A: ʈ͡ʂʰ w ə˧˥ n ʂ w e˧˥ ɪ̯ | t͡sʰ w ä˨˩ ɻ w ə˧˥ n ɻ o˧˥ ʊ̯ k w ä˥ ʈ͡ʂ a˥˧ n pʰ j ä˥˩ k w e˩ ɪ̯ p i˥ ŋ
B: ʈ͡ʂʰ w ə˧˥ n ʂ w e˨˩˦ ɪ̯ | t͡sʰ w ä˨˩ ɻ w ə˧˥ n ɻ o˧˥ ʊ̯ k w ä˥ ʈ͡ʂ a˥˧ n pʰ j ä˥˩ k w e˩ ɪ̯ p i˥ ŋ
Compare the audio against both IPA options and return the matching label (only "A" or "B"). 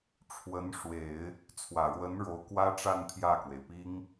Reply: B